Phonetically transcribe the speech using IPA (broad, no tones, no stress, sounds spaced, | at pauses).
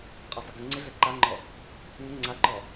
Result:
qʼ a sˤ ɪ ɡ ə ŋ͡ǀ ɪ ɮ ɛ ǃ a ŋ͡ǃ ɔ | ŋ ə ŋ͡ǀ a ǃ ɔ